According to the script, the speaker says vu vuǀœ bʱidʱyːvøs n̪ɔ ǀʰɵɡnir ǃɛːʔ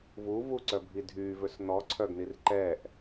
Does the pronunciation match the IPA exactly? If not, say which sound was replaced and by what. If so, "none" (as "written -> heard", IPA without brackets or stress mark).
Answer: ɵ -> œ